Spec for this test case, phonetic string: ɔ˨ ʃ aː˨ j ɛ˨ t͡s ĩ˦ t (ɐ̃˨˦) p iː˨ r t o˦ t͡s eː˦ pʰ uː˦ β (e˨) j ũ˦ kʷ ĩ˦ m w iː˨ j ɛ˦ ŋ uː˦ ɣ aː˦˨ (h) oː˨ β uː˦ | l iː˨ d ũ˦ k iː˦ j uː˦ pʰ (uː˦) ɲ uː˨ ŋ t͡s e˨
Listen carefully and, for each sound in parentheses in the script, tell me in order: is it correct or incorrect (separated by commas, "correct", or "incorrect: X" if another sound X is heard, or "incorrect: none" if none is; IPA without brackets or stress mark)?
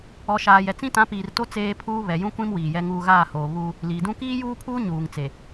incorrect: ã˨˦, incorrect: ɛ˨, correct, correct